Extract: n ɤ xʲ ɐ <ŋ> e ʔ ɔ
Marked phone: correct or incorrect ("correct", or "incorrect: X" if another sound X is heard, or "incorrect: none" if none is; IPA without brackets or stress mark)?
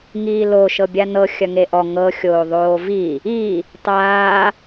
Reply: correct